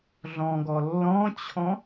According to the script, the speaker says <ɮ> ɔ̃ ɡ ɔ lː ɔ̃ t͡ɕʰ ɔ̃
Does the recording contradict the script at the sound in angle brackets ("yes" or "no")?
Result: no